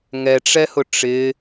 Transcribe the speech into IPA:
ŋɛʈ͡ʂɛhʊ ʈ͡ʂɪ

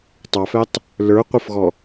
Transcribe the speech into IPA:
tˤɑfɛtˤ | lə˞ qʷəfɣɔ

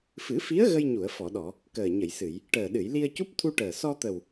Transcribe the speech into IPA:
fɨ˨˩˦fi˧˥ə̯ ɣə˧jɲu˨˩˨ə̯ fɔ˨˩˨ɗɔ˨˩˨ | kəː˨˩ɲə˨˩˨jsɨ˨˩˨j | ʈəː˨˩ɗɨ˨˩˨j li˧ə̯cu˦˥p̚t̪ʰu˧ʈəː˨˩ sɔ˧t̪ə˨˩w

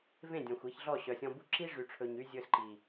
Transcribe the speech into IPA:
vẽ˦˨dʲɔ̃˨xʷ i˧çɮɔ˦˨ ɕœ˨sʲɔ̃˧bu˦ ǁi˦ʐy˨ʈ͡ʂʰɵ˨ɲ y˧ zʲɵ˧sǃi˨

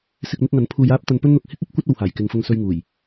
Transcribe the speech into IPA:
sɪ˧k̚ n̪ɪ˥k̚ŋɐ˨˥n pʰuː˧j aː˥p̚t̪ɐ˧npɵ˥nn̪ʊ˨k̚ hɪ˥k̚ɐ˨˥p̚ kʷɐ˥t̚ o˨whaː˨˩jkɪ˨ŋfʊ˧ŋ sɵ˧ɥ ŋuː˨˩j

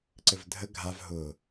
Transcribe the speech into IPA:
ǀɘvdʱə ɡʱav ɦʊ

